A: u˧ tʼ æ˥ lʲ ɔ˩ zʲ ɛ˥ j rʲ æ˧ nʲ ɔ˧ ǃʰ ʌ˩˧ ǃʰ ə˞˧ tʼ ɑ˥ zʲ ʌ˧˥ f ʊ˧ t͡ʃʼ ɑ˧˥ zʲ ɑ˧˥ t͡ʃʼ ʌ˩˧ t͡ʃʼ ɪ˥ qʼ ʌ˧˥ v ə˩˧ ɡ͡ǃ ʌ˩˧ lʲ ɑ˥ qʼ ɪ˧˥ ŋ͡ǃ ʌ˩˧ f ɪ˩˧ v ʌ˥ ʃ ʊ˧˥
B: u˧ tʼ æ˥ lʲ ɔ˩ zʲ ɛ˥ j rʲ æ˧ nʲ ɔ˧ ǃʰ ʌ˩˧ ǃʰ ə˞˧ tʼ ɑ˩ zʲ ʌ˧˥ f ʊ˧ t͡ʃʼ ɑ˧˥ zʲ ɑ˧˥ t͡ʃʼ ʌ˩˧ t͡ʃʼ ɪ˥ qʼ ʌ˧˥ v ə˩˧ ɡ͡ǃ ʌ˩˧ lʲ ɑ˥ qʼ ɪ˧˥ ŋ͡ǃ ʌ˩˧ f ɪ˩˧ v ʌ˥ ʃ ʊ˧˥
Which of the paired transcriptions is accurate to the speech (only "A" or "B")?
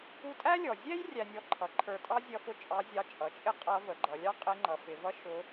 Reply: A